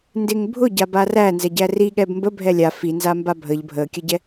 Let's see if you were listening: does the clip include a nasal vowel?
no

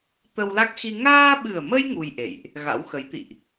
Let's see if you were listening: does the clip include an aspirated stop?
no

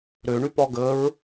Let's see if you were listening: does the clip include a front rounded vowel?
yes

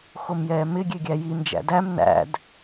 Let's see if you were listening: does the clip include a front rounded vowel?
no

